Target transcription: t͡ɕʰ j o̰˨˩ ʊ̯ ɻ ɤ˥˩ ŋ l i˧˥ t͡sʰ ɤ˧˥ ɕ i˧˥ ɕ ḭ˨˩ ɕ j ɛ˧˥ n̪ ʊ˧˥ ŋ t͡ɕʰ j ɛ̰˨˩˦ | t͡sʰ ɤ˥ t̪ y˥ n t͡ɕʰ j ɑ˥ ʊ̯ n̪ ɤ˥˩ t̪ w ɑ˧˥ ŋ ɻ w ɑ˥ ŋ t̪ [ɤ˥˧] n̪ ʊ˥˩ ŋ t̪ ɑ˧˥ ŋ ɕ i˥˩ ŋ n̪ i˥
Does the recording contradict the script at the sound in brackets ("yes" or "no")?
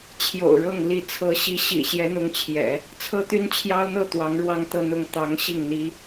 no